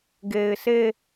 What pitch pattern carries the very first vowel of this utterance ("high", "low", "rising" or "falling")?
low